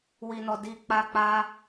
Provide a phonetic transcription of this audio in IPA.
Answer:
wi˧nɔ˧ di˧ k͡pa˧ k͡pa˦

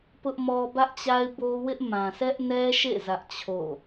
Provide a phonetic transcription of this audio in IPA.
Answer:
pʊ˦ʔmɔ˦ bä˦ʔt͡ɕa˦ɪ̯bo˦ wɪ˦ʔ mã˨sʰɛ˦ʔnɛ˦ʃḛ˦˨ zä˦ʔt͡ɕʰo̰˦˨

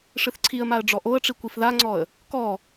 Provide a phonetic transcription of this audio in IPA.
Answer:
ʂɨθǀʰiə̯maə̯ ɖ͡ʐɔʔoə̯ʈ͡ʂi kʷifðaŋ͡ǀɔə̯ | kɔ

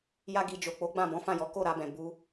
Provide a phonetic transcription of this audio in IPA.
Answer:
ja˦ɡi˧ d͡ʒo˨k͡po˨˦ ɡ͡bã˦˨bɔ̃˨˦fã˦˨jɔ˨˦ ko˦˨ɾa˧bɛ̃˨ bu˧

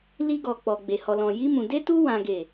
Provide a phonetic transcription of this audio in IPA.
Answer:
li˧ɡɔ˨k͡pɔ˨ ɡ͡be˨hɔ˨lɔ̃˨ ji˧mũ˨ de˧tu˧ wã˨ɡe˨

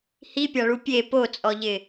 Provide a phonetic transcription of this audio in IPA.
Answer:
hipʲaɭu pʲe pot͡sʼɔʎɪ

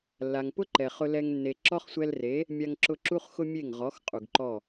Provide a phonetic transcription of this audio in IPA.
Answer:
lːa˨ŋpʊ˦ǃɛ˨ χʊ˧lɛ˧ŋ nːe˧ ǁɔ˦χsʷɛ˧lre˨˦ | mʲa˧ŋǁʊ˧ ǁu˦χxʊ˦mʲe˦˨ŋʁɔ˨˦x qʼu˨ɡǃɔ˦˨

